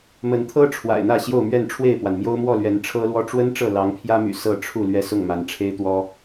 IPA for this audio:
m ə˨˦ n t̪ʰ ɤ˦ ʈ͡ʂʰ w a̰˨˩ ɪ̯ n̪ ä˥˨ ɕ j o˥˨ ʊ̯ m ɥ ɛ˥˨ n ʈ͡ʂʰ w e˥˨ ɪ̯ p w a˩ n m j o˦ ʊ̯ m w ɔ˥˨ l ɥ ɛ˨˦ n ʈ͡ʂʰ ɤ˦ l w ɔ˦ ʈ͡ʂ w ə˦ n ʈ͡ʂ ɤ˥˨ l ɑ˨˦ ŋ pʰ j ä˦ m y̰˨˩ s ɤ˥˨ ʈ͡ʂʰ u˥˨ l ɥ ɛ˥˨ s ʊ˥˨ ŋ m a˨˦ n ʈ͡ʂʰ e˦ ɪ̯ t̪ w ɔ˦

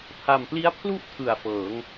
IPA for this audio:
pʰ a˨˩ m p l i˦˥ a̯ pʰ l u˥˩ ʔ tʰ ɯ˨˩ a̯ f ɤː˩˦ ŋ

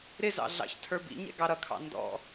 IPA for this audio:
ɾ ɪ z ɑ̰ ɮ ɑ̰ ç tʰ ə˞ b ḭ ɲ ɛ̰ ɡ ɑ ɾ ʌ kʰ ɑ̰ n d ɔ̰

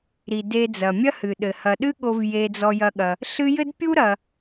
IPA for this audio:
ɾ i˩ d e˨ d͡z ɐ˩ mʲ ɐ˦ h ɨ˩ ɗ ɘ˩ h ɐ˩ ɗ ɨ˦ ɠ o˨ v j e˨ d͡z ɔ˨ j ɐ˨ ɠ ɐ˩ | ɬ ɨ˦ j ɘ˥ d pʲ u˥ ɾ ɐ˨

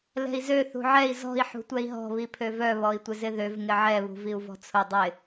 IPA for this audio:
l ɛ̤ i̯ z ø θ ṳ ʕ ɛ i̯ z ɔ̤ i̯ ħ ṳ tʷ ɛ i̯ ɦ ɔ̤ β i pʰ ø v œ β ɔ i̯ tʷ ɪ z ɪ ð ø v ŋ ɪ ʕ ɛ β ṳ v i u̯ v ɔ̤ t͡sʰ ʊ dˤ ɪ

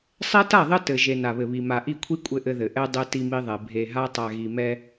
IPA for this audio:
sˤ ɛ˦ t a˦˨ ðˤ ɘ˦ t ɘ˨ ʒ e˨ n a˨ β ɘ˨ β i˨ m a˨ ʔ i˦˨ kʷʰ i˦ kʷʼ ɘ˦ ʔ ɘ˦ ð ɘ˨ ʔ ɛ˦ dˤ ɛ˦ t i˦ m i˦ ðˤ ɛ˨ bʱ e˨ ɦ a˦ tˤ a˨ ɣ i˨ m ɛ˦

